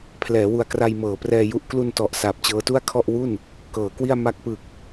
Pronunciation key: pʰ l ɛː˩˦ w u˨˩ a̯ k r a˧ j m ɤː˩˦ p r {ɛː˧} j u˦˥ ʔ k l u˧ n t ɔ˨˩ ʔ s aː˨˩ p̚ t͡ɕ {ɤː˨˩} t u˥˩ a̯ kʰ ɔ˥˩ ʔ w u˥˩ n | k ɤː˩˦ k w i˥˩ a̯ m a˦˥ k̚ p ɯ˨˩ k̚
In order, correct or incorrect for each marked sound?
correct, incorrect

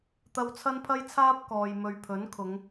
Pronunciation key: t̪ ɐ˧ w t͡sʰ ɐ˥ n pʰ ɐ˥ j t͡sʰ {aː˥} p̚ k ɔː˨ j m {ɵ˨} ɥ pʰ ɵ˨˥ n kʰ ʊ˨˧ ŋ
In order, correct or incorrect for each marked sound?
correct, correct

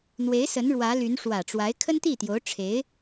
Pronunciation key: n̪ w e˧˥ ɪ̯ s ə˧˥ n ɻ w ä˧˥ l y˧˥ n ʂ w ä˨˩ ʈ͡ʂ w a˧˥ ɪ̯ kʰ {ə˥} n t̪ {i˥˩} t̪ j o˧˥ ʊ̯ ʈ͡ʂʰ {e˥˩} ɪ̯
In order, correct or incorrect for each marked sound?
correct, correct, incorrect

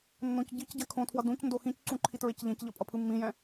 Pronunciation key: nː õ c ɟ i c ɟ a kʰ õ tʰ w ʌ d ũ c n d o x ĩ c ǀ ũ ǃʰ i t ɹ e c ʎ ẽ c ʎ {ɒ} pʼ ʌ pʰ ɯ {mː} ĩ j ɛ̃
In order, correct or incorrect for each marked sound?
incorrect, correct

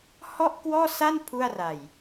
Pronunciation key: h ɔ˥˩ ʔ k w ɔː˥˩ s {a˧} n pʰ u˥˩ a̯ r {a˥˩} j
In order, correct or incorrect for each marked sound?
incorrect, incorrect

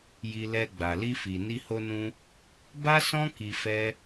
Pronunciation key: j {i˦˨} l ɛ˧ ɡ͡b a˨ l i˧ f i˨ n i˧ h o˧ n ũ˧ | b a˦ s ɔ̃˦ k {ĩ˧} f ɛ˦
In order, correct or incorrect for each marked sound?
incorrect, incorrect

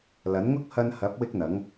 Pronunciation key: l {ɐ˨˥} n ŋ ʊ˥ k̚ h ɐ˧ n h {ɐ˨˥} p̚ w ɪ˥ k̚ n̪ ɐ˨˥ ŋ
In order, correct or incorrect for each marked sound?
correct, correct

